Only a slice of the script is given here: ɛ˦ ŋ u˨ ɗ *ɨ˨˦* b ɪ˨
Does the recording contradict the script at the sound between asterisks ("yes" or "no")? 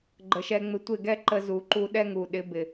yes